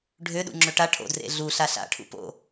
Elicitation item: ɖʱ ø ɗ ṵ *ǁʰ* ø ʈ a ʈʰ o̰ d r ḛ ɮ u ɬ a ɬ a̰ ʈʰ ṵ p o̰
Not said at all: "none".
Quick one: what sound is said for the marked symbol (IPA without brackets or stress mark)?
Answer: ŋ͡ǁ